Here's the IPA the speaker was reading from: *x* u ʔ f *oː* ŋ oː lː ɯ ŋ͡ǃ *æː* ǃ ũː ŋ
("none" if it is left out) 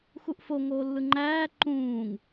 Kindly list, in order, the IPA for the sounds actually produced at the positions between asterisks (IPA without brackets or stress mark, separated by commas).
x, o, æː